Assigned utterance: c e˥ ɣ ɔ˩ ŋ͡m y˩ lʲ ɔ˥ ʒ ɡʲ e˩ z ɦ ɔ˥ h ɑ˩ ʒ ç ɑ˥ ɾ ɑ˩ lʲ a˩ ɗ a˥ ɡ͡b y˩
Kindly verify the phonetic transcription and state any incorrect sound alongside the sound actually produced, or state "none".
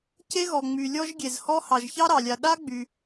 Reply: ɦ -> h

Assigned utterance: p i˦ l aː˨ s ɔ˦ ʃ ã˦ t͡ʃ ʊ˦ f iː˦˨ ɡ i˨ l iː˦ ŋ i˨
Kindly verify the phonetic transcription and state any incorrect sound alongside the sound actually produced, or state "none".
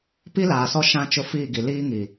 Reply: none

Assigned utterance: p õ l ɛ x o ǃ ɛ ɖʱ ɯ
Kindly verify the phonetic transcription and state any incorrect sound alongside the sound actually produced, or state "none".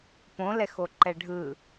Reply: none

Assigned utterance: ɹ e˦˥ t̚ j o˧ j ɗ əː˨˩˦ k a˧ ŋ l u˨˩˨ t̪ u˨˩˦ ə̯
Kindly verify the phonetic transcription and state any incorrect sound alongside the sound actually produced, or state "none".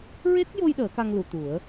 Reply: none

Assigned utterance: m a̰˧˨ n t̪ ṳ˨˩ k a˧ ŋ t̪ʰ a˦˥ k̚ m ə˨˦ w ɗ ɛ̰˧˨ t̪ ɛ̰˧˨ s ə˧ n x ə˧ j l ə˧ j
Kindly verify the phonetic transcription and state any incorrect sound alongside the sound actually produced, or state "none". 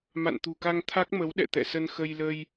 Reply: none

